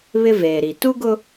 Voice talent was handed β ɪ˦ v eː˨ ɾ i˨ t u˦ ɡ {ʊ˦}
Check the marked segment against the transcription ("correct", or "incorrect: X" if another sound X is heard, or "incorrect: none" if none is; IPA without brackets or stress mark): correct